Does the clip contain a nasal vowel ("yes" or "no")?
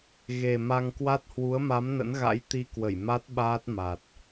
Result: no